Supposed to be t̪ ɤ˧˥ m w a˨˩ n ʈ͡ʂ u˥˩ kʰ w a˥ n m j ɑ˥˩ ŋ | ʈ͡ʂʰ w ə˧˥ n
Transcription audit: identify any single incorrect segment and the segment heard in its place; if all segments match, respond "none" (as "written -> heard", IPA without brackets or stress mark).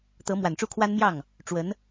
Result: ʈ͡ʂʰ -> ʈ͡ʂ